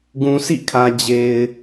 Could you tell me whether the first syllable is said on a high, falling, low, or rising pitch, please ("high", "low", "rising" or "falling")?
low